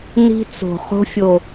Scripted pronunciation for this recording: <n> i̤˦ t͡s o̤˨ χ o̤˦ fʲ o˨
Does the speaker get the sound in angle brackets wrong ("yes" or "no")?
no